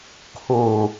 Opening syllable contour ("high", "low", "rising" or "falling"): low